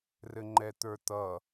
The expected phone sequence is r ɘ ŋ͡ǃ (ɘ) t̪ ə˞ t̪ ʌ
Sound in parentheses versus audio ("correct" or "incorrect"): incorrect